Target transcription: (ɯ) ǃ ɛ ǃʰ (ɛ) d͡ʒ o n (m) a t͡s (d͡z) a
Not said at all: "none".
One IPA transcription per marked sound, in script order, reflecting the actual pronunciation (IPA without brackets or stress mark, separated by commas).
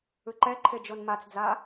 ɯ, e, m, d͡z